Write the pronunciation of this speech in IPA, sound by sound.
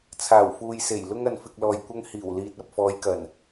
t͡sʰ aː˨˩ w f uː˨ j s e˨˩ j l ʊ˧ ŋ ɐ˨ n f ɪ˨ k̚ l ɔː˨ j kʷ ɐ˧ ŋ h iː˨˩ w l iː˨ t̚ ɐ˨ p̚ f ɔː˨˧ j k ɐ˨˩ n

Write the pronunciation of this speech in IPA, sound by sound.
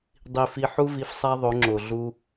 dˤ i˧ f i˧ ħ u˦ v i˧ f sˤ æ˦ ðˤ o˨˦ ŋ͡ǁ o˨ ɮ u˧

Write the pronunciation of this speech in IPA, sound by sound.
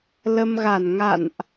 l ə˧ m ɣ a˧˩ n ŋ a̰˧˨ n ʔ

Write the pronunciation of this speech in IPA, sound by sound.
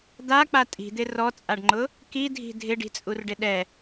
d̪ a k͡p a tʼ i̤ d̪ ɪ r ɔ t͡sʼ a ɖ ŋ͡ǃ ʊ | k i dʱ i̤ dʱ ɪ ɖ i̤ t͡sʼ u r ɖ ɪ ɗ ɛ

